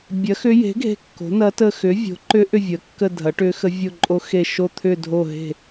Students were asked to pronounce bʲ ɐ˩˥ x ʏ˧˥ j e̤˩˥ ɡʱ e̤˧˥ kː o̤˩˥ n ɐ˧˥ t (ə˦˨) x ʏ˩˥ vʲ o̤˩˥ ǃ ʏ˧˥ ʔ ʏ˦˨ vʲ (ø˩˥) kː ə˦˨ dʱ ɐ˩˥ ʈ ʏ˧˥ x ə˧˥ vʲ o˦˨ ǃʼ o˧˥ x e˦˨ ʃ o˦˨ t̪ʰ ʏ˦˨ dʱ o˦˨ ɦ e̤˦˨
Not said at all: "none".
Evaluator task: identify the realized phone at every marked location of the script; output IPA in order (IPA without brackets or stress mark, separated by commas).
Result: ə˦˨, ə˩˥